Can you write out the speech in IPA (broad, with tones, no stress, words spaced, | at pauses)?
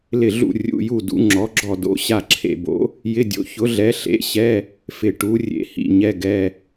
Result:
lɪ˦˨ɮṵ˦˨ rʲṵ˧˥˧ju˦˨ dṵ˨˥ ŋ͡ǁɔ˨˥ɡ͡ǁɔ˦˨do̰˧˥˧ ɕa˦˨ǁʰḛ˦˨bo̰˨˥ | jɪ˧˥˧dʲo̰˨˥ çʊ˨˥ɮɛ˨˥ɬḛ˧˥˧ɕɛ˧˥˧ | fɪ˦˨ ʈu˨˥ rʲḛ˨˥hḭ˦˨ ɲɛ˧˥˧ɡɛ˧˥˧